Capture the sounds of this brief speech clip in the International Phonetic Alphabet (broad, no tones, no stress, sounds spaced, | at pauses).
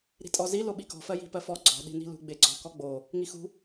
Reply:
ɾ i̤ tʼ ɔ z i l o ɓ i k ɔ̤ f ɜ j i̤ p ɜ f ɔ ɡ͡ǀ ɔ̤ ɗ i̤ n i̤ l ṳ ɡ͡b e ɡ͡ǀ ɔ̤ k ɔ ɡ͡b o | ŋ i x ṳ